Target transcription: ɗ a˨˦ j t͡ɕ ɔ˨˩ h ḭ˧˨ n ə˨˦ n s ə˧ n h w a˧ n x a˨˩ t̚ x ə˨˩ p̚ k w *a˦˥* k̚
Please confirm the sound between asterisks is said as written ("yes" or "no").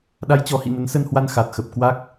yes